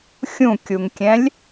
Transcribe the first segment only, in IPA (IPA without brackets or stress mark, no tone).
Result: xʲ